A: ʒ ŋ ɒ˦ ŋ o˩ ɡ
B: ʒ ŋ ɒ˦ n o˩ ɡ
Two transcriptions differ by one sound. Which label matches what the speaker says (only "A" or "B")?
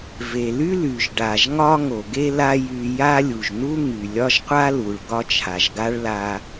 A